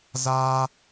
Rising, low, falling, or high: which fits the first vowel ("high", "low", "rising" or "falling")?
high